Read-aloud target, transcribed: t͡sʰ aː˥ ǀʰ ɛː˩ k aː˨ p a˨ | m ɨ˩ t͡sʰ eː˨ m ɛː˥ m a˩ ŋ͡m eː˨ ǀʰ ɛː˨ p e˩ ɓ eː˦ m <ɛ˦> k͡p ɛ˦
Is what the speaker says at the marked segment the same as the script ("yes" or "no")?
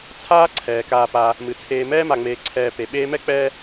no